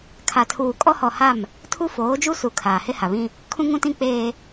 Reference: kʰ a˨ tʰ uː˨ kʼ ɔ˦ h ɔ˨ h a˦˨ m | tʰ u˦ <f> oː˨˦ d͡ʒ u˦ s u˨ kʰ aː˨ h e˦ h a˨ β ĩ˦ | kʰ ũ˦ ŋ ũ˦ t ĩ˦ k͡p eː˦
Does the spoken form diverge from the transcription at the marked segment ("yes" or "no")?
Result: no